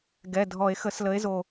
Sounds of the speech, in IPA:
ɡ ɛ˩˧˩ dʱ ɔ˨˩˦ e̯ x ə˨˩˦ s l ə˨˦ e̯ z o˧˩

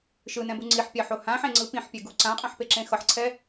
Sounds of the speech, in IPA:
ʃ ɯ n ɛ̃ b u ŋ͡ǀ i ħ pʲ a ħ o h ã ħ ẽ ŋ͡ǀ ɯ p ĩ ħ pʲ ɛ ɡ u ǀ ã qʼ ã ħ p e ǁ ẽ x ʌ ħ ǀʰ ɛ

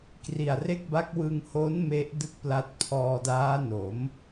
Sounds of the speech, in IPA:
k r i˨˩ a̯ r e˥˩ k̚ b a˦˥ k̚ w ɯ˧ ŋ h o˦˥ n m e˦˥ ʔ d ɯ˥˩ k̚ p l a˦˥ t̚ pʰ ɔː˧ d aː˦˥ n o˩˦ m

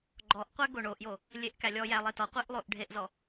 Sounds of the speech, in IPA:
ɡ͡ǃ ɔ ʔ qʷ æ ɡ o ɳ o ʔ j o | lʲ e ʔ k æ lʲ ɔ j æ lˠ e t ɔ qʷ e ʔ lˠ o ʔ ɖʱ e ʔ z ɔ

